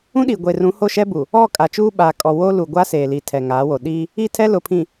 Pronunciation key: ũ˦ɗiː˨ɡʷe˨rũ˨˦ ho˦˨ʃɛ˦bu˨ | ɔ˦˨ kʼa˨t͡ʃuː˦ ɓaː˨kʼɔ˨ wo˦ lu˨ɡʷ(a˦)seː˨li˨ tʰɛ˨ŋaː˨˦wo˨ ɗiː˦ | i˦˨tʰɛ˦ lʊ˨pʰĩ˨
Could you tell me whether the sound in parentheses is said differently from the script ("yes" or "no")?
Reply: no